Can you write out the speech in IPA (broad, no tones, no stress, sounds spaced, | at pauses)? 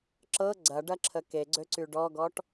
ǁ ɤ ɡ͡ǀ ɐ ɖ ɐ ǁʰ ə k e ɡ͡ǀ ø ǀ y ɖ ɔ ɡ ɔ ʈ